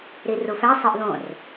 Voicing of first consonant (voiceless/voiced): voiced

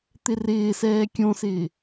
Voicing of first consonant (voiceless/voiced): voiceless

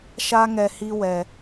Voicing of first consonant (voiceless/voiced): voiceless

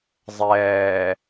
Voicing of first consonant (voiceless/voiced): voiced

